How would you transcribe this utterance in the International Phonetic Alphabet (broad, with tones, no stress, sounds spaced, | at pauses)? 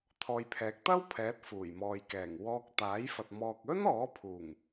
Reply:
t̪ʰ ɔː˨ j pʰ ɛː˨˥ k̚ t̪ ɐ˥ w pʰ ɛː˨˥ t̚ f uː˨˩ j m ɔː˨ j k ɛː˨˩ ŋ w ɔː˧ k̚ t̪ aː˨˥ j f ɐ˨ t̚ m ɔː˨ k̚ ɵ˥ n ɔː˨˥ pʰ uː˨˩ ŋ